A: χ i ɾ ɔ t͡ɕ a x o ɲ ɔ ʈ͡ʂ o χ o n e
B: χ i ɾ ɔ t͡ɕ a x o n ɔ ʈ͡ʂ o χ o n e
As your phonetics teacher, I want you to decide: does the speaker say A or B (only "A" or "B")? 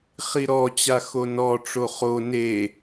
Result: B